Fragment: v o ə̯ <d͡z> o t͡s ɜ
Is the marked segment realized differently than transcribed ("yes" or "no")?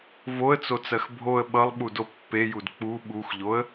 yes